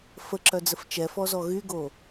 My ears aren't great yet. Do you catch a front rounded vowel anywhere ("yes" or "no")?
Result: yes